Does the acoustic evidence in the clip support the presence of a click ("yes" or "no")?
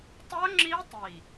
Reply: yes